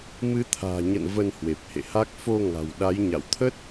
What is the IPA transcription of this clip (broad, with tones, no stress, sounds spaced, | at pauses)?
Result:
m ɨ˨˦ t̪ʰ a̤ː˨˩ ɲ ə̰˧˨ n v ə˧ n h w e˨˩ p̚ h ḛ˧˨ h a˦˥ k̚ f o˧ ŋ a̤˨˩ w ɗ a˨˦ j ɲ a̰˧˨ w t̪ʰ ə˦˥ t̚